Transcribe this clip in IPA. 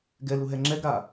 ɡ ɛ l u ɦ ɛ ŋ͡ǁ ɛ ɡ ɾ a

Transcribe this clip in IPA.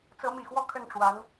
t͡s ɤ˧˥ m i˨˩ x w ɔ˥˧ kʰ ə˥˩ n ʈ͡ʂ w a˧˥ n

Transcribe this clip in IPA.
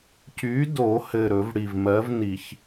c y˨˥ d o˨˩˦ h ɘ˨˩ ɾ ɵ˨˩˦ v ɽ i˨˩ v m ɜ˨˥ v n i˨˩˦ ç

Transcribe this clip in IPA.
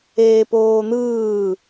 eː p oː n̪ ɯː

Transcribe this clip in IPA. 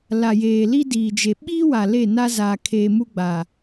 l a˨ j eː˨ l i˦ d iː˨ d͡ʒ e˨ ɓ iː˦ w a˨ l e˦˨ n a˦ z aː˨ kʰ eː˨ m u˦ ɡ͡b a˨

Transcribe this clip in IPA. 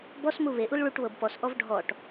b ɔ s m u β e ʔ u l ɭ u ʈ β ɤ b p ɔ s ʔ ɔ v ɖʱ ɔ ʈ

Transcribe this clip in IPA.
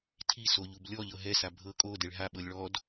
tʰ i s o ʎ u b lʲ ɔ ʎ ɤ ɦ ɛ s a bʱ ɤ kʼ o d e ɭ ɦ a ɓ ɤ lʲ ɭ ɔ d

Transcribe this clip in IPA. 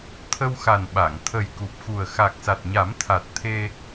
t̪ʰ ə˧ w x a˨˩ n ɓ a˨˩˨ ŋ t̪ʰ ə˨˩ j k u˨˩ p̚ x u˨˩ ə̯ x a˨˩ k̚ s a˨˩ t̚ ɲ a˨˩˦ m t̪ʰ a˨˩ t̚ t̪ʰ e˧

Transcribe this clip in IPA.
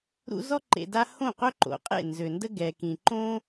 ɾ ṵ˧ z ɔ˦ ǃ ḛ˧ d a˦ h õ˦˨ q œ˦ ǃ o̰˨˦ qʼ ḛ˦˨ n z ø˨ n d ə˦ ɡ ɛ˨ k ĩ˨ ǃ õ˦

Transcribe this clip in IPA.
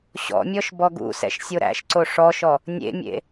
ɕ ɔ̰ mʲ ɔ ʃ b ɔ ɡ ṵ s ɛ̰ ʃ sʲ o ɾ æ̰ ʃ ǀ o ʂ ɔ ʃ ɔ | nʲ ḛ mʲ ḛ

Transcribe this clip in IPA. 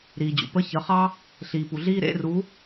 ɾ iː˩ d͡ʑ ṵ˩ p ə˧˥˧ ç ə˩˧˩ χ ɑ˥ | ɬ iː˩ p u˩ ɮ iː˥ ɾ ḛ˧˥˧ r u˨˥

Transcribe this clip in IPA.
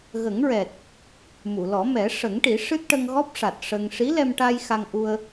ɣ ə˨˩˦ ŋ ɹ ɛ˨˩ t̚ | m u˨˩˨ l ɔ˨˩˦ m ɛ˨˩˦ ʂ ə˨˩˦ ŋ ʈ i˨˩˦ ʂ ɨ˦˥ t̚ ʈ ə˧ ŋ ɣ ɔ˦˥ p̚ ʂ a˨˩ t̚ ʂ ə˧ ŋ ʂ i˧˥ l ɛ˧ m ʈ a˧ j x a˧ ŋ ʔ u˧ ə̯

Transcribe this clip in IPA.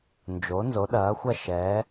n d͡ʒ o˩˥ n z o˩˥ ɗ ɐː˩˥ xʷ ɐ˥˩ ʃ ɛː˩˥

